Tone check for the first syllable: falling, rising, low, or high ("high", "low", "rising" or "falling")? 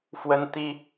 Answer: high